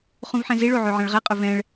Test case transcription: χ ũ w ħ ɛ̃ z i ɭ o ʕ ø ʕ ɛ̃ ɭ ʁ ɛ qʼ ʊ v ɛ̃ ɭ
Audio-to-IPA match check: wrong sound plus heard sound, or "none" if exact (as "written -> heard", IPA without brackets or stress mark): w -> v